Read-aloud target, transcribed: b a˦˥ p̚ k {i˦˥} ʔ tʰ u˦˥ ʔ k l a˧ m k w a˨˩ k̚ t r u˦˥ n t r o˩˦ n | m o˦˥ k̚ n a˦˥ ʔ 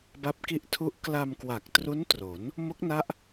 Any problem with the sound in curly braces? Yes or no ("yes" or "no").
no